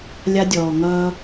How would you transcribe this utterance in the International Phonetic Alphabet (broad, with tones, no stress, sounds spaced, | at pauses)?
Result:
lʲ a˦ dʲ ɔː˨ ŋ ʌː˦